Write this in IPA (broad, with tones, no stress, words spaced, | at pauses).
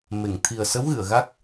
me˨˩˨ŋt̪ʰi˨˩ə̯sə˧˥wɣɨ˨˩˨ə̯ ɣa˦˥k̚